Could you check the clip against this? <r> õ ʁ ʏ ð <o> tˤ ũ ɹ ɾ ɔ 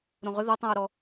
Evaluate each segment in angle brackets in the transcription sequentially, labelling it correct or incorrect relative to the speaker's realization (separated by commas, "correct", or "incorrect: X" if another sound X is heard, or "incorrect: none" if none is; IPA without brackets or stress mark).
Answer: incorrect: ɾ, correct